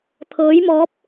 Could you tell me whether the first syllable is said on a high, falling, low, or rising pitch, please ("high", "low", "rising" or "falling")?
rising